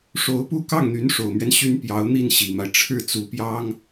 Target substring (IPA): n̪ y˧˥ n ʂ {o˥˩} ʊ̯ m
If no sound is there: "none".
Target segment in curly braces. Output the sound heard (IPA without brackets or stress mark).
o˨˩